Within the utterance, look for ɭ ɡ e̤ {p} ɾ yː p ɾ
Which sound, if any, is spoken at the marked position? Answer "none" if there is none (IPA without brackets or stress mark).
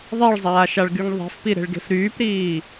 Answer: f